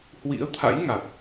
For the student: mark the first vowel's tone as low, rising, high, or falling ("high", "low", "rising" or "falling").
rising